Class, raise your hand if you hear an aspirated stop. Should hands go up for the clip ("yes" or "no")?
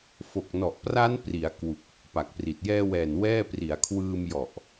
yes